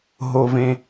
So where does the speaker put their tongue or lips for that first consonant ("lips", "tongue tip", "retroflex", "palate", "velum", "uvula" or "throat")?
throat